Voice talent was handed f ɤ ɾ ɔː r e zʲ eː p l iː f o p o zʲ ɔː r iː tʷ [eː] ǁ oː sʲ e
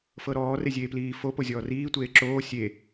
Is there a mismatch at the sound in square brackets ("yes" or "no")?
no